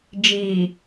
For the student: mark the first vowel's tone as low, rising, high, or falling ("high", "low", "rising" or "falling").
low